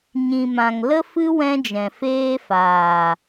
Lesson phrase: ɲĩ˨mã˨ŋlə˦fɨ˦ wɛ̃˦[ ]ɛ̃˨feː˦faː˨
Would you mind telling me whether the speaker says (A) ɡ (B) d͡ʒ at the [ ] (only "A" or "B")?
B